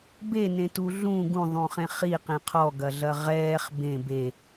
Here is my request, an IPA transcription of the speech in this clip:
b e n ẽ t u ɮ ũ ɡ ũ ðˤ ũ χ ẽ χ i q ẽ qʰ ɔ ɡ ɐ ɮ ɐ ʁ ɛː χ b ẽ b e

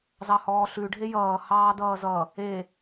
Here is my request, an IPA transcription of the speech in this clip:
z ɑ h ɔː ɬ ʉ ɖʱ e j ʌː h ɑː d ʌː z ʌ | e

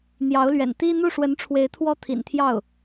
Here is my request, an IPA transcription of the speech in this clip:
n̪ j ɑ˧˥ ʊ̯ l ɥ ɛ̰˨˩ n t̪ i˥ n̪ u˥˩ ʂ w ə˧˥ n ʈ͡ʂʰ w e˧˥ ɪ̯ t̪ʰ w ɔ˥ t̪ʰ ḭ˨˩ n t̪ʰ j ɑ˥˩ ʊ̯

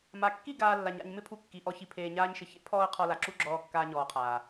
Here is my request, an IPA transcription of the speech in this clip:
m a˨ kː i˦˨ ɡ aː˧ lː a˨ ɲ a̰˧ ɲ m ɪ˦ pʰ u˧ kː i˨ ʔ ɔ˧ ç i˨ pʰ eː˨ ɲ aː˧ ɲ ʃ ɪ˨ ç ḛ˦ pʰ ɔː˧ ə̯ qʰ ɔ˨ l a˨ ǁ u˦ ɡ͡ǁ ɔː˧ kː aː˧ ɲ ɔː˨ qʰ aː˨

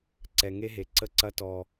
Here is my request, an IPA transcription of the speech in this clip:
ǀ ɛ˨ ŋ e˦ ɦ e˨ ǀ ə˦ ǀ ɐ˦ t ɔ˧

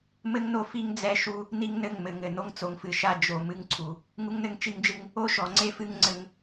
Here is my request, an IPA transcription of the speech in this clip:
m ɘ˦ ŋ n o˦ f i˦ ŋ d͡z ɛ˦ ʃ u˦ | n i˦ ŋ n ɘ˦˨ ŋ m ɘ˨ ŋ ɘ˨ n o˦ ŋ t͡s o˨ ŋ f ɨ˨ ʃ a˦˨ d͡ʒ o˨ m ɨ˦ ŋ ǀʰ u˨ | ŋ u˦ ŋ n ɘ˦ ŋ t͡ʃ i˦ ŋ d͡ʒ ɨ˦ ŋ | o˦ ʃ ɔ˨ ŋ͡ǀ e˦ f ɨ˦ ŋ ŋ͡ǀ ɘ˦ ŋ

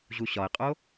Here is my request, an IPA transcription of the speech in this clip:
ʑ u ɕ ɒ ɪ̯ qʼ o

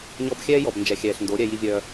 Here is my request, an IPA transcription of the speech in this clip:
ɲ ɔ˦ b xʲ ɛː˦ j ɔ˨ b n d͡ʒ ɛ˨ xʲ ɛː˨ ɬ n d o˨˦ ɾʲ ɛ˦ j i˦ vʲ œː˦

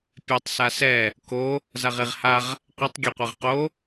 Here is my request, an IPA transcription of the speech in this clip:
pʲ ɛ tˤ s a s ɛ | k o | z a ʁ e ʁ h a ʁ | qʷ e tˤ ɡʲ ɛ qʷ ɛ ʁ q o

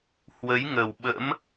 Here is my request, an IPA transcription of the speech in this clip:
h w ə˨˦ j ŋ ə˨˩ w ɓ ə̰˧˥ m

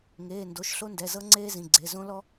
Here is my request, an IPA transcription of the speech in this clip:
ŋ eː˩˧˩ n d o˩˧˩ ʃ ɬ o˥ n d ɛ˩˧˩ z ɤ˥ ŋ͡ǀ eː˥ z ĩ˩˧˩ ɡ͡ǀ e˩˧˩ z õ˥ l ɔ˥

